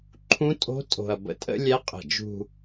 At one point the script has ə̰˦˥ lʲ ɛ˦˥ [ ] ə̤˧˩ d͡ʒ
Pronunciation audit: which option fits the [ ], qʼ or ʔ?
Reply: qʼ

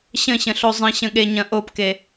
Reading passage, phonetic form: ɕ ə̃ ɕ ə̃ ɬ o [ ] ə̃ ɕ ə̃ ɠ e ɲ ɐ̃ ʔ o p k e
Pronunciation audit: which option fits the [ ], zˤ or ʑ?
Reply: zˤ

